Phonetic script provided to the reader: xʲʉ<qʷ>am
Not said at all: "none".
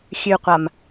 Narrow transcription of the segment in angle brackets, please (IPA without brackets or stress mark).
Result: qʷ